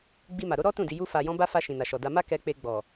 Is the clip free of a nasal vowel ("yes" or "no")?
no